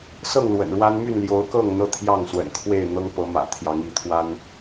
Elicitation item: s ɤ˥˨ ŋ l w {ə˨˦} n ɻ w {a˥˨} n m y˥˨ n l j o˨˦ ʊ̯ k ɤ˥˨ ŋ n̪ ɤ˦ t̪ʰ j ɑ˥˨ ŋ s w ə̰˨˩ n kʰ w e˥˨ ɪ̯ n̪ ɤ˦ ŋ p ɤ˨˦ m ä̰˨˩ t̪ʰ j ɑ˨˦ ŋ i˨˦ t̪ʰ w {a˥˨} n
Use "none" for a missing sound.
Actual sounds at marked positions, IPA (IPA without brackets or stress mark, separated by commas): ə̰˨˩, a˦, a˦